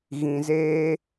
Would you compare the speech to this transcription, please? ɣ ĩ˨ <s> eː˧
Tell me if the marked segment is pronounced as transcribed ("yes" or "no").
no